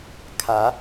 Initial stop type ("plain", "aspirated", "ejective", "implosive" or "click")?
aspirated